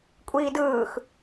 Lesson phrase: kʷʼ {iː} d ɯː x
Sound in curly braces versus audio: correct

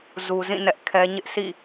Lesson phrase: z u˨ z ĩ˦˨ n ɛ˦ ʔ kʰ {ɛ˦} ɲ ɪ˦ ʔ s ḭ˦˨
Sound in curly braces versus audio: correct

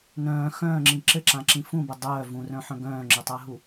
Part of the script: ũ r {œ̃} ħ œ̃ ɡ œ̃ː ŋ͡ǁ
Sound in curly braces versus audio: correct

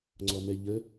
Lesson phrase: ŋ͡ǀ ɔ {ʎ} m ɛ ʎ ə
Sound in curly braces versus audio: incorrect: none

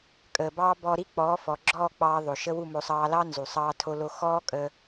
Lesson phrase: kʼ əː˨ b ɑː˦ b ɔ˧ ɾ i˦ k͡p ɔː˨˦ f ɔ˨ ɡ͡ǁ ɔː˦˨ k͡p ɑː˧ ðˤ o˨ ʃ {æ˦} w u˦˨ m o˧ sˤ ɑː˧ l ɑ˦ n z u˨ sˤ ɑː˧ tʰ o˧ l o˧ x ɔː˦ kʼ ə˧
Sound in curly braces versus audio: incorrect: ə˦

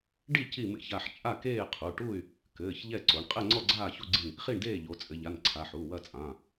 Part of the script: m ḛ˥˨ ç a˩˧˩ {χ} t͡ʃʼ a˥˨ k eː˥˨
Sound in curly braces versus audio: incorrect: ħ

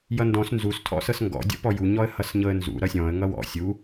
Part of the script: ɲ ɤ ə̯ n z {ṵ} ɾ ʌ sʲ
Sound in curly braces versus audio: correct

